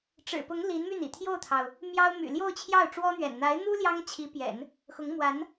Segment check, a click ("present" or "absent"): absent